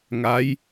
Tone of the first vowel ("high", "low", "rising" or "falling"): rising